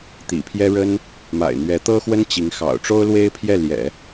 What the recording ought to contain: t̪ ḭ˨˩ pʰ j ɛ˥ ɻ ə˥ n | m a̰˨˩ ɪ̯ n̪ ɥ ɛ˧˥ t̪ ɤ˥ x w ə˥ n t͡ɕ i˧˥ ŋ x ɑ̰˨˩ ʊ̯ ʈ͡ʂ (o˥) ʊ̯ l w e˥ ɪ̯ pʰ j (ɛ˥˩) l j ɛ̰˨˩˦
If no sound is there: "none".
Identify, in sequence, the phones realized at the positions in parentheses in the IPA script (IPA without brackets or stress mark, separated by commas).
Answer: o˥, ɛ˥˩